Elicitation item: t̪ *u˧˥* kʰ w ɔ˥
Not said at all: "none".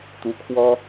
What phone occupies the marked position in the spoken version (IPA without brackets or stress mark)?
u˧˥